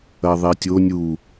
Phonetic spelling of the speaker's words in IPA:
ɐ ðˤ e tʲ o nʲ u

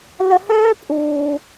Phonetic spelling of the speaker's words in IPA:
l ə˨ h œː˦ pʼ uː˨

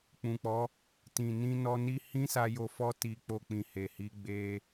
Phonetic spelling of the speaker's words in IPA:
k͡p ũ˨ k͡p ɔ˨˦ | t ĩ˨ n ĩ˧ n ɔ˧ n i˦ h ĩ˦ s a˧ j o˧ f ɔ˦ t i˧ k͡p o˧ k͡p ĩ˨ h e˨ h i˨˦ ɡ͡b e˧

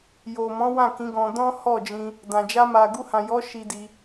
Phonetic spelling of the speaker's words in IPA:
j o˨ m ɔ̃˨˦ w ã˦˨ k ĩ˨˦ ɡ ɔ̃˧ d ɔ̃˦ h ɔ˦˨ d͡ʒ ĩ˧ | d ã˨ d͡ʒ a˧ m a˨ ɡ u˧ h ã˨ j ɔ˨˦ ʃ i˧ d i˧

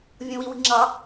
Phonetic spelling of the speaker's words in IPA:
vʲ õ w i w i̤ ŋ͡ǁ ɑ

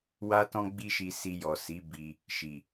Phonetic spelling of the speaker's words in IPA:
w a˦ t ɔ̃˦ ɡ͡b i˦ ʃ i˧ s i˧ j ɔ˨ s i˨˦ b i˧ | ʃ i˨

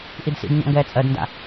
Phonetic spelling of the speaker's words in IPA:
ʔ i d s ḭ d ɲ ɔ̰ ŋ ɡ ɛː t͡sʼ ɜ d n d a̰

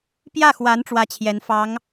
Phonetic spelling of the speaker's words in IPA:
p j ä˥˩ x w a˧˥ n ʈ͡ʂ w ä˥ t͡ɕʰ j ɛ˧˥ n f ɑ˧˥ ŋ

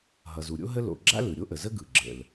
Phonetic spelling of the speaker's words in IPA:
ɦ ʌ˩ z u˩ ɾʲ o̰˥ ɦ ə˥ l o̰˩ ɡ͡ǁ a̰˥ l ɯ˩ ɾʲ o˥ ʔ ə˩ z ə˥ ɡ ɯ˩ ɡ͡ǁ ə̰˩ l

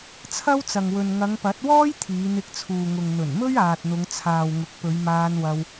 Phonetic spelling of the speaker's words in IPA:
t͡sʰ ɐ˥ w t͡s ɐ˨ ŋ w ɵ˨ n ŋ ɐ˨˧ ŋ p ɐ˨˥ t̚ w ɔː˥ j t̪ʰ iː˨˧ n̪ ɪ˧ k̚ t͡sʰ uː˨ ŋ ʊ˨ ŋ n̪ ɵ˨˩ n m ɵ˥ ɥ aː˨ t̚ n̪ ʊ˨˧ ŋ t͡sʰ aː˨ w ŋ ʊ˨ k̚ p ɵ˨˧ ɥ m aː˧ n w ɐ˧ w

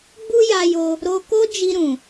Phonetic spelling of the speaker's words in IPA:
ɡ͡b u˦ j a˧ j o˧ | ɾ o˧ k o˦ d͡ʒ i˧ ɾ ũ˨

